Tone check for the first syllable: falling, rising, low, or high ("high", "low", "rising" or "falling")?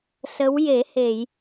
rising